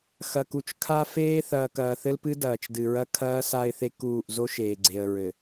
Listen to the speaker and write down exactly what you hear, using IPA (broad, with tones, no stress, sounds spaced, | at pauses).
x ɐ˨ k u˨ t͡ʃ kʰ a˦ f eː˦ θ ɐː˨ k ɐː˨ θ ɘ˦ l p ɨ˦ d ɐː˨ t͡ʃ d ɨ˨ ɹ ɐ˦ kʰ ɐː˦ s a˦ ɪ̯ θ e˦ k uː˦˨ ʔ z o˦ ʃ eː˨ ɡ͡ǀ e˨ ə̯ ɹ ɘ˨